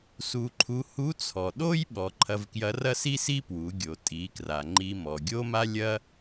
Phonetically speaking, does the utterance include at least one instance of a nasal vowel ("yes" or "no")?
no